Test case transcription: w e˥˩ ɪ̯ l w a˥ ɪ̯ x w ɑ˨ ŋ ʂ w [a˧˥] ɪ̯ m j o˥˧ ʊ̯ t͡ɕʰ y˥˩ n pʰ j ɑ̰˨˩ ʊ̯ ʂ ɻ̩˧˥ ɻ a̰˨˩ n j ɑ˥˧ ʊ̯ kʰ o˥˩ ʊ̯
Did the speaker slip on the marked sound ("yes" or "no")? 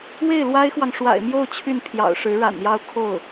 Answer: yes